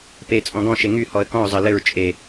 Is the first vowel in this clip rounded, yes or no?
no